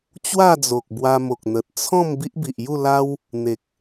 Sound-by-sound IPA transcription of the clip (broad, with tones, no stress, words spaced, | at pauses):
t͡ɕwa˥˧d͡zo˨k̚ bwa˧mo˨k̚ n̪ə˨t̚ t͡sʰɔ̃˥˧m bi˦ʔbi˨ʔju˥˧la˦w | n̪e˨k̚